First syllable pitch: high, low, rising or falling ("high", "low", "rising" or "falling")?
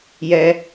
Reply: rising